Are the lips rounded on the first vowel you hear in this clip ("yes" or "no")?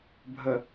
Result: no